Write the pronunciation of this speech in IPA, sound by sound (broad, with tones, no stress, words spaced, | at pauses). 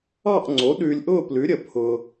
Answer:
ɑ˥˧ʔŋ͡ǀo˨˥ ɗʉː˧lʲʔʊː˥˧plʉ˨˥ɾʲə˨˩ pʰʊ˧